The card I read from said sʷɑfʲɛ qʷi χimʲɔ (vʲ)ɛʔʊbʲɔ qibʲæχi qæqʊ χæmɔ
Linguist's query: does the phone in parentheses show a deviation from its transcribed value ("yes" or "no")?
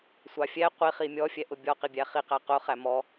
yes